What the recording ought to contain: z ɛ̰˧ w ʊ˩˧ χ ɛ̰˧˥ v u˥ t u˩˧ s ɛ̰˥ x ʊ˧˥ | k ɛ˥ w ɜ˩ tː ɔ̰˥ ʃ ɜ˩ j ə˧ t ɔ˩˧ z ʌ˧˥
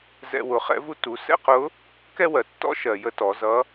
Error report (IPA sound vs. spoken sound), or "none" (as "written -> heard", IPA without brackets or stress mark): x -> q